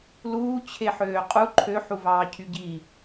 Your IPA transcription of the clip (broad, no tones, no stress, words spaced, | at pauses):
luː t͡ɕʰeħøːqʼu ǃʰø ħuvɑːcʰyɟi